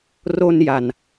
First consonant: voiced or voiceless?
voiced